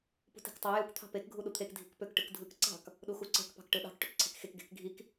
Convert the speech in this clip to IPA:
p ṳ t i̤ k tˤ ɑ j u k t̪ʰ ɑ̤ p e k ɡʱ u ɗ u t̪ʰ e k dʱ i̤ k p ø k ʈ ɯ k dʱ ɯ k ǀ ɑ̤ k | ɗ u x u ǀ e̤ k p ɑ̤ k ʈ ɯ ɗ ɑ̤ k ʈ ø k ǀʰ e̤ k x e k ɡ e̤ k ɡʱ i k

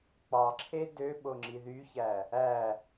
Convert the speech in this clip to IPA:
k͡p ɑ ǁʰ e d ø ɓ o ŋ͡ǁ i ð y ç æ | æ

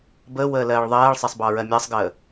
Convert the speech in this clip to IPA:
b əː w əː l ɜː ɭ ðˤ ɜː ɭ sˤ ɜ sˤ b ɑ ɹ ɜ mʲ ɑ sˤ ɡ əː

